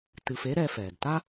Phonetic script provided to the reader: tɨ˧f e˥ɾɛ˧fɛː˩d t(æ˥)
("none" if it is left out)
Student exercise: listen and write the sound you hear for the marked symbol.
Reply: a˥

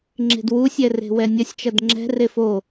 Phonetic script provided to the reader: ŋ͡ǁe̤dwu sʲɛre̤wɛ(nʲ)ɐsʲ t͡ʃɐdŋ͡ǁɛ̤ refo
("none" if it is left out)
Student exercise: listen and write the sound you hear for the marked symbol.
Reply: nʲ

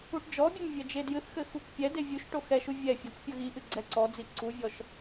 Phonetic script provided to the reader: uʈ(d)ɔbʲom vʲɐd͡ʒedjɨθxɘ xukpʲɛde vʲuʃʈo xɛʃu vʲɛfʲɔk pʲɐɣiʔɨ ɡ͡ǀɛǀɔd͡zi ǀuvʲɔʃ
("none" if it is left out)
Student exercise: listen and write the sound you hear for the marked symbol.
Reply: d͡ʒ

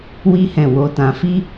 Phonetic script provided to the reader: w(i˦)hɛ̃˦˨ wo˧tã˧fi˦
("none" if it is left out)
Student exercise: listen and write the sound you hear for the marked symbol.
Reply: i˦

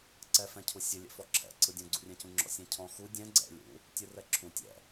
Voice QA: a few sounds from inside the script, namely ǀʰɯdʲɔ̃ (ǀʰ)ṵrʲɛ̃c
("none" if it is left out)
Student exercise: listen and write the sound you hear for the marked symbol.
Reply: ɡ͡ǀ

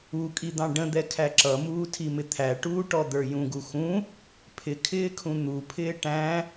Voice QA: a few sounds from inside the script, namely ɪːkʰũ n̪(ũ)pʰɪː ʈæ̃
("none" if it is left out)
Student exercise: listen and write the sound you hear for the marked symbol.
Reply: u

